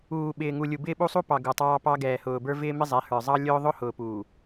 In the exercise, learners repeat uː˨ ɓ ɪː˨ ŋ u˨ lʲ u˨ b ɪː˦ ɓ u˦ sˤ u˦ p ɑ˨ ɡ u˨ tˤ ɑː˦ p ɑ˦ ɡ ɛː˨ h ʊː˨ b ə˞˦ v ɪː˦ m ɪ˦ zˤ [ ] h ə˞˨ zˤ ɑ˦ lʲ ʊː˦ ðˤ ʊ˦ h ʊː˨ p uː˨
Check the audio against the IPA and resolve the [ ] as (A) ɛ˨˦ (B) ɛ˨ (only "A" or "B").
A